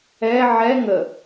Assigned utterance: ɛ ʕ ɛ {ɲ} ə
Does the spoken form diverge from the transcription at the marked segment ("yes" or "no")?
yes